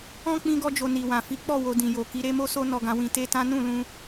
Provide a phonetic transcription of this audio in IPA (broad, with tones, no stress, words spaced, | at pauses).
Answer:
ɔ̃˦ k͡pĩ˦ɡɔ˦d͡ʒo˧ ni˨wã˨fi˨˦k͡pɔ˦˨ wo˧dĩ˨jo˨ ki˨˦ɾe˦mo˦so˦ nɔ˧ɡã˧wĩ˧ te˦tã˦ nũ˦˨lũ˧